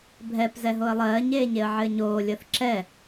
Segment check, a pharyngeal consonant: present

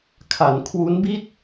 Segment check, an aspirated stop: present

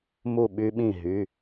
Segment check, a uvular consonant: absent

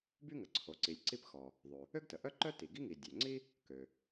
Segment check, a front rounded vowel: present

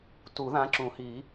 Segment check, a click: present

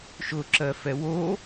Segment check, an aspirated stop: absent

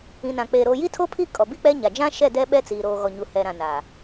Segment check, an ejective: present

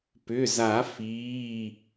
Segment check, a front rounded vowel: present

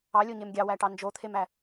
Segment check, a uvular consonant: absent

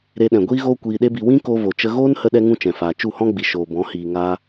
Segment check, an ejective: absent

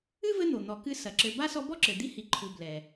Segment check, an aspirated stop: present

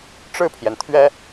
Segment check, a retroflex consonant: present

